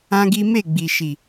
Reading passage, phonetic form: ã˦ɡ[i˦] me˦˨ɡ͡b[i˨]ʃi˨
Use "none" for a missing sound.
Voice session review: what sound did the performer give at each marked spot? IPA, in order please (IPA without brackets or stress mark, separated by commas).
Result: i˦, i˨